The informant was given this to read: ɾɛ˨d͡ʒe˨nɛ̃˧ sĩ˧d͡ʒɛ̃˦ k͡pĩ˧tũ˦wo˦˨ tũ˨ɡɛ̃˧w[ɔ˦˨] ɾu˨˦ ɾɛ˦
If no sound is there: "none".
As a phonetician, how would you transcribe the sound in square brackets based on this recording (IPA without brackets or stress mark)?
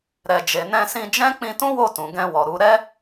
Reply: ɔ˨